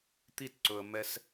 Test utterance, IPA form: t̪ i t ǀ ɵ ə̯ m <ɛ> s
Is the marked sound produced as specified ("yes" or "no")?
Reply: yes